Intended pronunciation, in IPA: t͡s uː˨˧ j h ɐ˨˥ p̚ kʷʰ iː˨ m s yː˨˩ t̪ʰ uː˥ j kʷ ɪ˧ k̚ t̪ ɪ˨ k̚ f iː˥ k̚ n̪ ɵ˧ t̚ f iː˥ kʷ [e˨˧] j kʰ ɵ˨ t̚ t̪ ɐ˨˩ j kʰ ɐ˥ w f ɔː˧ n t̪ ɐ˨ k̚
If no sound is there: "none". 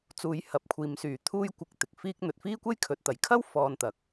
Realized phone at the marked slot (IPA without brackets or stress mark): e˥